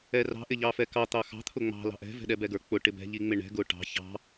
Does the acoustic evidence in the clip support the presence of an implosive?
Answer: yes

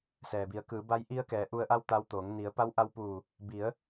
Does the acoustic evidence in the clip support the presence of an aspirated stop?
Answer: no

